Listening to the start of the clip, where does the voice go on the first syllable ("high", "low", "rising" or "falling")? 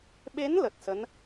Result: rising